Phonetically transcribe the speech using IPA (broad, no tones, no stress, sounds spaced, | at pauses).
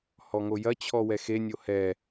h ɔ ŋ o j ɐ t͡ɕʰ ɔ w ɛ x e nʲ o h ɛ